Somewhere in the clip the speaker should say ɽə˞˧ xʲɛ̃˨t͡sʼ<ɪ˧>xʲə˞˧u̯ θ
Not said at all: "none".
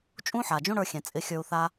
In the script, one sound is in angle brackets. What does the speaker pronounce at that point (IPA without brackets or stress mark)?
ɪ˧